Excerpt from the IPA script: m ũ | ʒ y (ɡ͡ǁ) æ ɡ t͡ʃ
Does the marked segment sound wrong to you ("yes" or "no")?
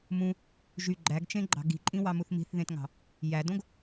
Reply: yes